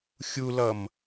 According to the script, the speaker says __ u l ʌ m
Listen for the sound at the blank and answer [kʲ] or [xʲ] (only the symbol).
xʲ